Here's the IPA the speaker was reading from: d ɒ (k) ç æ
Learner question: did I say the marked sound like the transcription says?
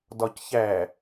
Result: no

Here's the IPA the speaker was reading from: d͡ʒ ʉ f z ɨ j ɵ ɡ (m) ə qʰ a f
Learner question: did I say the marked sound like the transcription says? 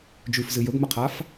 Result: yes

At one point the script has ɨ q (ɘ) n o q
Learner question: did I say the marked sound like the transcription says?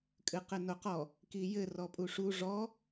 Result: yes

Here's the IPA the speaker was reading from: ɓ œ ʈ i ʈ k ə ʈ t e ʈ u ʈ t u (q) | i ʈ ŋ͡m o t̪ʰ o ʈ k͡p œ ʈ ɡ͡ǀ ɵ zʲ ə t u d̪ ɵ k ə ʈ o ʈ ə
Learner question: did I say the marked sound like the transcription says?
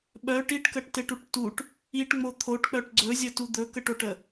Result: no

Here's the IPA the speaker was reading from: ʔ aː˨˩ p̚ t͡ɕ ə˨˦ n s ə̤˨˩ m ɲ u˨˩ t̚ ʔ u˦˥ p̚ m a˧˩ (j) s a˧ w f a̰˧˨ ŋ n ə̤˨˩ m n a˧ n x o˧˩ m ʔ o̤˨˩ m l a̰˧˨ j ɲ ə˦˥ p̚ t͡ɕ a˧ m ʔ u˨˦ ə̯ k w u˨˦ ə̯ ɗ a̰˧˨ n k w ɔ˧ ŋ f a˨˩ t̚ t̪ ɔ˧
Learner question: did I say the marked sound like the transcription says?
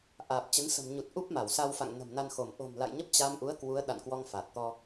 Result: no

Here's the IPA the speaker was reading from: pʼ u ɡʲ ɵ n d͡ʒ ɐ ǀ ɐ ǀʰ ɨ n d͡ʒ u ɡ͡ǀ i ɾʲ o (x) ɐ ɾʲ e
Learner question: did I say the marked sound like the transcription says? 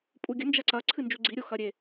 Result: yes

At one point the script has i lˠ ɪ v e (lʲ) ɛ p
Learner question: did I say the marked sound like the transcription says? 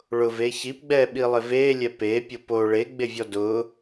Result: yes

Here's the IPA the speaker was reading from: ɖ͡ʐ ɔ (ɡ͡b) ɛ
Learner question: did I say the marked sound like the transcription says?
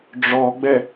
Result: yes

